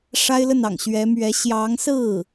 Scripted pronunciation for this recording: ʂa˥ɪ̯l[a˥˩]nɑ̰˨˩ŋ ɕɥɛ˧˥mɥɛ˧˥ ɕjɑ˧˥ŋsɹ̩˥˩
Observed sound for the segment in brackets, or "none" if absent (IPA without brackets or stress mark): ə˥˩